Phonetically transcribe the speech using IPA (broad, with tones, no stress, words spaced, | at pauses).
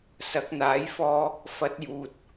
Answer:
sɐ˨˥k̚n̪aː˨˥jfɔː˧ | fɐ˨˥t̚juː˨t̚